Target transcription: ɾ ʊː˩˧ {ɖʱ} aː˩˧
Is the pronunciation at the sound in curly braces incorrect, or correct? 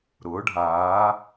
correct